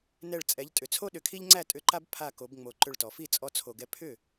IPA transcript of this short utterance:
n ɛ˧˩ ɭ t͡sʼ ɛ˩˧ ʎ tʼ ʏ˩ t͡sʰ o˦ ɗ ʏ˩˧ kʰ i˦ ʎ ŋ͡ǀ æ˥˩ tʼ ʏ˧˩ ǃ a˦ b pʰ a˧˩ k o˩˧ b ŋ͡m o˩˧ ǃ ʏ˧˩ ɭ t ɔ˩ f i˥˩ t͡sʼ ɔ˦ t͡sʰ o˧˩ ɡ ɛ˦ pʰ ʏ˥˩

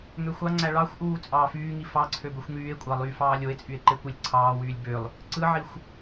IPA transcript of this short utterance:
ŋ ø xʷ ɑ ŋ͡ǀ æ ɭ ɑ xʷ ʔ uː t͡sʼ ɑː f yː ŋ i f ɑ ǀʰ ø b ø xʷ ŋ yː e̯ kʷʼ ɑ lˠ yː f ɑː lʲ o e̯ t͡sʼ y e̯ ǃ e kʷ e lʲ ǀʰ ɑː w yː lʲ b ø lˠ | ǀ ɯ ʕ i xʷ

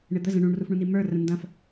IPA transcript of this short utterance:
ɳ ɪ d̪ ə z ə̃ ɳ ũ ɳ r u f ɳ ũ n i m ə˞ r ə̃ n d ɐ̃ f

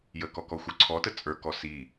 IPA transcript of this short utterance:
j ə k ɔ k ɔ xʷ ə˞ ǀʰ ɔ t ə t͡sʼ ə˞ k ɔ s i

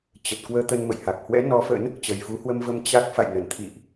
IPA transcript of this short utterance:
t͡ɕ ə˨˩ t̚ k w əː˧ t̪ ə˧ n m ə̰˧˨ j h a˨˩ k̚ h w ɛ̰˧˥ n ɔ˨˦ f ə̰˧˥ n | t͡ɕ ə˨˩ j f u˨˦ h w ə˧ m v ə˧ m t͡ɕ a˦˥ k̚ f a̰˧˨ j n ə˧˩ n t̪ʰ ḭ˧˨ ʔ

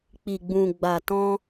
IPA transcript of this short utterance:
k͡p i˨ ɡ͡b ũ˨ ɡ͡b a˨ t ɔ̃˧

